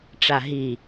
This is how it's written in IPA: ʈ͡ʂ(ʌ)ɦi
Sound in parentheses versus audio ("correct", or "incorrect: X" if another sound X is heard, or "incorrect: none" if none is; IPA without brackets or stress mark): incorrect: a